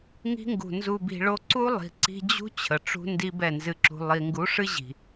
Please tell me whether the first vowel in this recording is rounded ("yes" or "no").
no